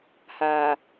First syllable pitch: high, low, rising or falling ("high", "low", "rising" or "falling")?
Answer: low